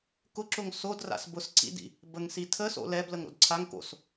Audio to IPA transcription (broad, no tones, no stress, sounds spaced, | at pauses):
k ʊ ǁ ʊ ŋ s o d r a̰ s b ʊ s ǀ ḭ d ḭ | b ə ŋ s i tʰ ə s o̰ l ɛ b l ə ŋ ɾ o̰ d ǀʰ a ŋ k o̰ s